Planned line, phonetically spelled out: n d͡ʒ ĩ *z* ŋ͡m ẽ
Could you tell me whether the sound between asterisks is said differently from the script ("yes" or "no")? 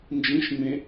yes